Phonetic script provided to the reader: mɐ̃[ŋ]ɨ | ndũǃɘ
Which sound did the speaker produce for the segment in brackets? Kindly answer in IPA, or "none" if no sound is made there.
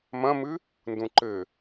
m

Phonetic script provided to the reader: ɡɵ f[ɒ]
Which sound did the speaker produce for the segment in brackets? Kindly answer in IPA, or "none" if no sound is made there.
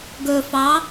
ɑ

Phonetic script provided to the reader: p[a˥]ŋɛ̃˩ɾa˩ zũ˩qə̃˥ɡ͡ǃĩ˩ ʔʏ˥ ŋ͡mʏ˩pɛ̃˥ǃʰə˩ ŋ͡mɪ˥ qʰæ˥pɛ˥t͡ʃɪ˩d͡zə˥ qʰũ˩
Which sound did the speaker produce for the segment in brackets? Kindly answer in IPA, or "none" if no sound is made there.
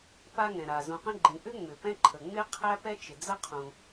a˥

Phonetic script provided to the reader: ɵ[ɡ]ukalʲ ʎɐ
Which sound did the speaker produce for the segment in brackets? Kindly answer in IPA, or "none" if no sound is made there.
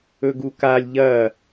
ɡ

